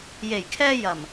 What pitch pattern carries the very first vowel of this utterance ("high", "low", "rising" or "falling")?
low